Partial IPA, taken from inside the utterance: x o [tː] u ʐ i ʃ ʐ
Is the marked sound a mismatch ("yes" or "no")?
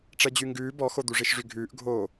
yes